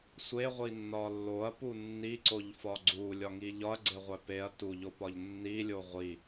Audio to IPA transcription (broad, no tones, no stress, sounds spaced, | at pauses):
sʷ e ʁʷ i nː ɒ lː o ɐ̯ p u nː i ǀ o ʎ f ɒ ɡ͡ǀ u lʲ ɒ ŋ i ʎ ɒ ɐ̯ ɡ͡ǀ e ʁʷ æ p e ɐ̯ t u ʎ o p ɒ ʎ nː i lʲ o ʁʷ i